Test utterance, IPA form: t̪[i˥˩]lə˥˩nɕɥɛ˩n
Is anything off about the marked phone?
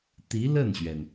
yes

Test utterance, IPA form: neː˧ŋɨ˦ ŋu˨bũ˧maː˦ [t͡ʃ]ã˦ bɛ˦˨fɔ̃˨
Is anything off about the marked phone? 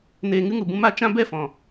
no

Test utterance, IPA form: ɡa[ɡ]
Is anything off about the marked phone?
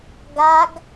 no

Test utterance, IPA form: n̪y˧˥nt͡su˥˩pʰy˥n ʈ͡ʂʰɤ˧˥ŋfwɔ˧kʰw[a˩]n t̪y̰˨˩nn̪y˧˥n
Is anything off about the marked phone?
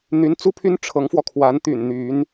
yes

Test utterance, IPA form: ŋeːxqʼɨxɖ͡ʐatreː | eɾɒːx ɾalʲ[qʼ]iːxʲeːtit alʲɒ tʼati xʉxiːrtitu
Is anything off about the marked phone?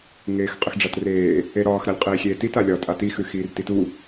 no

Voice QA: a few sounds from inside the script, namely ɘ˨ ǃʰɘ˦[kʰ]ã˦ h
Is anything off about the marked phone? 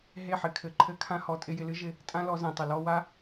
no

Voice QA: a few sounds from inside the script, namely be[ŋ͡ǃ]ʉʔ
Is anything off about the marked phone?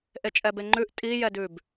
no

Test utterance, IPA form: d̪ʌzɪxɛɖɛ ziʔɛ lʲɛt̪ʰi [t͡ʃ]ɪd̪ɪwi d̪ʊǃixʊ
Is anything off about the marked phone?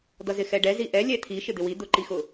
yes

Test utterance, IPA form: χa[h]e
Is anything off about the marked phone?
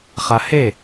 no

